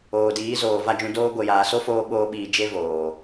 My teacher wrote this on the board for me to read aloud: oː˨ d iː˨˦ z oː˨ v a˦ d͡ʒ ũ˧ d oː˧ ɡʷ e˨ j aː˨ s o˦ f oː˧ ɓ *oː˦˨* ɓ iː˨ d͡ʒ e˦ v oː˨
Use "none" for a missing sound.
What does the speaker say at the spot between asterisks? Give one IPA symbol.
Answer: oː˧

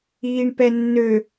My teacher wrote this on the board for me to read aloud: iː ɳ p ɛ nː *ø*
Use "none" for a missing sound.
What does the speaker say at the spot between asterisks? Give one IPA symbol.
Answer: ø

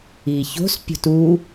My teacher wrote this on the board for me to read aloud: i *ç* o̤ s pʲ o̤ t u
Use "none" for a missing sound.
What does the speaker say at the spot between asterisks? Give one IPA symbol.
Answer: ç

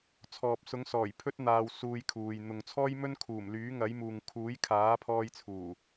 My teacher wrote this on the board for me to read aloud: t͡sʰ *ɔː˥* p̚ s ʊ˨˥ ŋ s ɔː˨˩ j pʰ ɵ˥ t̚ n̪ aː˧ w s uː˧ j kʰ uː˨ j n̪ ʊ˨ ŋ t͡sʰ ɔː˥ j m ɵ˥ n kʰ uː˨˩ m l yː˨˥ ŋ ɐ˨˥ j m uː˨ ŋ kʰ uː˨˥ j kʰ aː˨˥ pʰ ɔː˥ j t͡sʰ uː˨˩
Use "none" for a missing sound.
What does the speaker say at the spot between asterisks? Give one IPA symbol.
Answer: ɔː˨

